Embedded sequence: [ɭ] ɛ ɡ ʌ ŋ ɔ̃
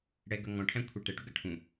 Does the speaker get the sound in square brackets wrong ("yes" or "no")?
yes